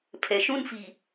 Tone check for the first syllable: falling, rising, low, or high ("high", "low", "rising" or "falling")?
low